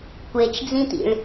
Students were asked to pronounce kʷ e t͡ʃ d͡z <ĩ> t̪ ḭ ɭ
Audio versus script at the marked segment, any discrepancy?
no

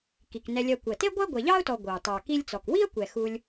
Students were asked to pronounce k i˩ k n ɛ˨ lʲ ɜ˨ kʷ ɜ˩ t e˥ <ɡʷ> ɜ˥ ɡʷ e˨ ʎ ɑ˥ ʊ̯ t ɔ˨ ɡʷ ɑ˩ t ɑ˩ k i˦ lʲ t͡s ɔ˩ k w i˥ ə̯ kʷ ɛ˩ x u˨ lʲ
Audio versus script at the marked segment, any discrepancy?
no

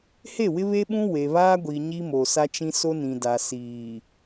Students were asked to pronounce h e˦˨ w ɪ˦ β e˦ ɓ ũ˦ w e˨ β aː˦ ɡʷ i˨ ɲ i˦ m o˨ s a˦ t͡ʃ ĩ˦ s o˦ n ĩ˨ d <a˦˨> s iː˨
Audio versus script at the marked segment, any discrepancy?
yes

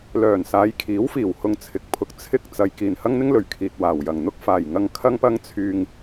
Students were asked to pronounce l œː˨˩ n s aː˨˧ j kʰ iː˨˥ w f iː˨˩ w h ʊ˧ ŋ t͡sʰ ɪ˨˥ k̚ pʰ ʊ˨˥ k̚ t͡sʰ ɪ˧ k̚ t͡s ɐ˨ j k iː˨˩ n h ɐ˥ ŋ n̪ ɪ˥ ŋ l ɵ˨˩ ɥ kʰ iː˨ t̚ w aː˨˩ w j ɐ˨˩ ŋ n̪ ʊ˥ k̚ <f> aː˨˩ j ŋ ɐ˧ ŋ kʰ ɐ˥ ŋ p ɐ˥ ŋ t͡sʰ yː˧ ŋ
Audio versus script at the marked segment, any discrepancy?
no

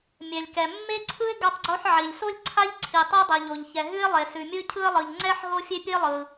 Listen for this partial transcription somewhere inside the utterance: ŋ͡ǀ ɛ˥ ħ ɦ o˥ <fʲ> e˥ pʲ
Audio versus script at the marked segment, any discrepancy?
no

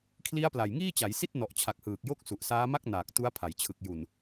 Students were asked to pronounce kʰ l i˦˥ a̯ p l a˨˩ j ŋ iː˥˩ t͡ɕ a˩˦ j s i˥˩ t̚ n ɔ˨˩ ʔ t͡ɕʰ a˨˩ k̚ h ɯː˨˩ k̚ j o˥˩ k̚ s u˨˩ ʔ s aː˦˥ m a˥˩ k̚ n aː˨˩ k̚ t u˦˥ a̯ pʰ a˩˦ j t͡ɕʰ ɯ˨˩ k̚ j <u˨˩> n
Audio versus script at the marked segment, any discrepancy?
no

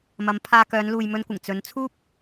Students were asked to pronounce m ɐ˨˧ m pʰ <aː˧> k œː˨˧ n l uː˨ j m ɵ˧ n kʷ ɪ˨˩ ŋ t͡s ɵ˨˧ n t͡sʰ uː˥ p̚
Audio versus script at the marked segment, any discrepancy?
no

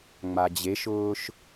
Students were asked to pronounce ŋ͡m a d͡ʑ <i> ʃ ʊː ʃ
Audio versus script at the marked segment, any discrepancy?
yes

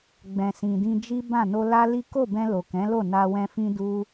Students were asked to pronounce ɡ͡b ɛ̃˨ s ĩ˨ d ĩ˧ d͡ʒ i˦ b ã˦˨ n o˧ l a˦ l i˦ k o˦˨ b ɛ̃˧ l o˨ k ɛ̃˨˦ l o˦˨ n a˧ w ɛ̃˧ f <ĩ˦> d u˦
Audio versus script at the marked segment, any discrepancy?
no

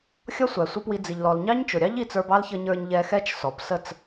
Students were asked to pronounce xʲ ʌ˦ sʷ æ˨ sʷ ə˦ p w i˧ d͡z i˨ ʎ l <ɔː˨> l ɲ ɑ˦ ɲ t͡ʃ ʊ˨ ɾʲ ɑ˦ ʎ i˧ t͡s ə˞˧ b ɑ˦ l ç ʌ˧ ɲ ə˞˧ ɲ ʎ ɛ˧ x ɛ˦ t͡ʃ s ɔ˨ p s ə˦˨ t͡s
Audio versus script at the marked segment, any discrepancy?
yes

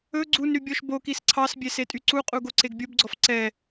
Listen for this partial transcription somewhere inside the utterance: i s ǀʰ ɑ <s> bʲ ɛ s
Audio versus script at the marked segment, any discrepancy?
no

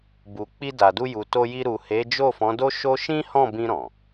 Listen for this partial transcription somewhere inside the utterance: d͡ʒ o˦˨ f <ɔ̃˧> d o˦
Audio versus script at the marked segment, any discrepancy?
yes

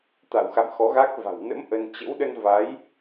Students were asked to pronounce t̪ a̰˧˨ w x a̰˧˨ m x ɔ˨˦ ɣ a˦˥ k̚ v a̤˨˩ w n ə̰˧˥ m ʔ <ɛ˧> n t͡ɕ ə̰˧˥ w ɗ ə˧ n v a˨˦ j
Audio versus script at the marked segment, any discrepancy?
yes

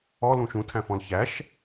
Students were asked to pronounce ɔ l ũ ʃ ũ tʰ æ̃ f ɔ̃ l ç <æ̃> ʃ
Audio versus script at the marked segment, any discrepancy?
yes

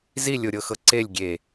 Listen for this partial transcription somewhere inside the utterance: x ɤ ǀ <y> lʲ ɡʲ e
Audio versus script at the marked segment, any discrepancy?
yes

